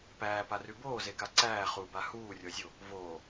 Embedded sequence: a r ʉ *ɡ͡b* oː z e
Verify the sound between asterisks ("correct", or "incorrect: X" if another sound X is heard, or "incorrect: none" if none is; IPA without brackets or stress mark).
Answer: incorrect: b